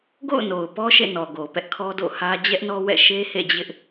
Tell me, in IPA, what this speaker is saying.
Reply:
ɡo̰˦˨ʊ̯ no˨ʊ̯pɔ˦ ʃḛ˦˨nɔ˨ɡo˨ pɛ˦ʔkʰɔ˦do̰˦˨hä˦ d͡ʑɛ˦ʔnɔ˦wɛ̰˦˨ ʃe˦hḛ˦˨d͡ʑɪ˦ʔ

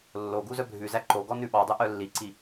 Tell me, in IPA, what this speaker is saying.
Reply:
lːo ɡuzœbʱʉzæ ǃoɡɔ nʉɓɑdˤʉ ʔœlːiǀi

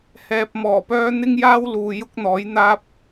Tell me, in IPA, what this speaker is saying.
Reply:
hɛː˨p̚mɔː˨˩pœː˧ n̪ɪ˥ŋjaː˥wluː˨ jʊ˥k̚n̪ɔː˨˥jn̪aː˥p̚

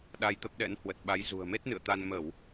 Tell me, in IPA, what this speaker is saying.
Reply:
ɗa˧jt̪ə˦˥p̚ɗɛ̰˧˥n hwə˨˩t̚ɓa˨˦j zṳ˨˩ə̯me˦˥t̚nɨ̰˧˨ə̯t̪a˧n mə˧˩˨w

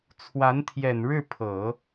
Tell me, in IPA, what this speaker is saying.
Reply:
t͡sʰwa˧˥nt̪ʰjɛ˨˩n ɻɻ̩˥˩pʰɤ˨˩˦

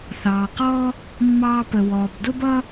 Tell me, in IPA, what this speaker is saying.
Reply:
θɑː˩qɔː˥ | mːɑː˧pə˩wɔː˩b dʊ˥bʌː˥

